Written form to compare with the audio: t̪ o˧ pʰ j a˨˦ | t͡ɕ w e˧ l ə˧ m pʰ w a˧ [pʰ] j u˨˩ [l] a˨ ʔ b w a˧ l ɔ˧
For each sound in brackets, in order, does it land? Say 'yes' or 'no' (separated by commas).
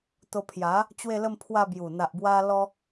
no, no